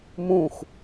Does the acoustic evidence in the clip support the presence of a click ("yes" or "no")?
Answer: no